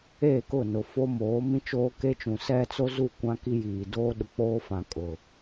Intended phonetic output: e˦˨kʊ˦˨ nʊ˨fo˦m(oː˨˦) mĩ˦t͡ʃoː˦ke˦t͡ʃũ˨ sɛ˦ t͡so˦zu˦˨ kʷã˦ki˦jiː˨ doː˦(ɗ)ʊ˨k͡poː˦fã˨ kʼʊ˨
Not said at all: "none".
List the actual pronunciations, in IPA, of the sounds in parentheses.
oː˨˦, ɗ

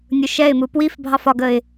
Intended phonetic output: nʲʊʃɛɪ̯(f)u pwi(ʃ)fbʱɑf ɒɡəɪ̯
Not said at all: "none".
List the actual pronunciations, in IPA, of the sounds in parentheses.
m, none

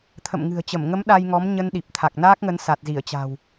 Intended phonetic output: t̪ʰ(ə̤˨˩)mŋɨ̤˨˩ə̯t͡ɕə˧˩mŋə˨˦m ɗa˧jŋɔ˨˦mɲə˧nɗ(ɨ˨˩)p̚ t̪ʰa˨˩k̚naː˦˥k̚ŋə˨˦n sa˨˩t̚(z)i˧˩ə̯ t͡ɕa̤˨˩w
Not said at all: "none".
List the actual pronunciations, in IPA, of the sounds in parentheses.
ə̰˧˨, i˨˩, z

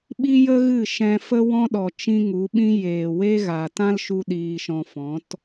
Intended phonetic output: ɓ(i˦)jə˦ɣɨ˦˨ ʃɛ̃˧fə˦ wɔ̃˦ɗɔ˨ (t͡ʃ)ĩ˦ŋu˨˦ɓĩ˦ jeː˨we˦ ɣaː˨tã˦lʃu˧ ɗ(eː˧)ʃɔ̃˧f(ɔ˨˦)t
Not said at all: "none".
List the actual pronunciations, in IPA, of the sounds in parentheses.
i˦, t͡ʃ, iː˧, ɔ̃˨˦

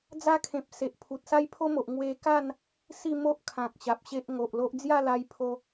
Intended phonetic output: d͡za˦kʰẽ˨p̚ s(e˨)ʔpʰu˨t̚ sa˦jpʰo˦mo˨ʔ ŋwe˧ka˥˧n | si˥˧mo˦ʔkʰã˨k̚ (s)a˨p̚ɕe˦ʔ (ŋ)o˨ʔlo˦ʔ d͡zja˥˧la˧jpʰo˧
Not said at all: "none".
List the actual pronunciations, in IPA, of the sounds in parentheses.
e˨, ɕ, ŋ

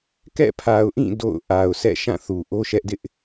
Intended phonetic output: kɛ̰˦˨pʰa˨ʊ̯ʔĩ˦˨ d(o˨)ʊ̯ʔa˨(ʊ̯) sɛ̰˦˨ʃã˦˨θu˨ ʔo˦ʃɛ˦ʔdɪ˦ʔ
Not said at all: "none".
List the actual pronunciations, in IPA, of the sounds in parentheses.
o̰˦˨, ʊ̯

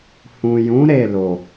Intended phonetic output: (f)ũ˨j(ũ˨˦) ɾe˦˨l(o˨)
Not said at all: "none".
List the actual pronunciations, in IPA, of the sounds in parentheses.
h, ũ˨˦, o˨

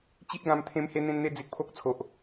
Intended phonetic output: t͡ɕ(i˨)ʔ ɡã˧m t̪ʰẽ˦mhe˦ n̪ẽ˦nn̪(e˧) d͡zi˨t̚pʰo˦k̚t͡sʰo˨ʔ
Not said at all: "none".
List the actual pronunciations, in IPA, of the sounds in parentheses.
i˦, e˦

